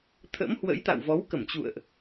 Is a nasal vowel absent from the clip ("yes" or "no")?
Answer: yes